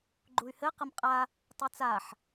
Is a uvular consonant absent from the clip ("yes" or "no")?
no